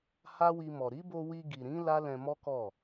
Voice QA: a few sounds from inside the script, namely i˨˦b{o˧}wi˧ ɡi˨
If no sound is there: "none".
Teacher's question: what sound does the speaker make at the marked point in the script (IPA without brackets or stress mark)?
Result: o˧